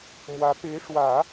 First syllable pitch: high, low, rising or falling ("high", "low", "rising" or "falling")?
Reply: rising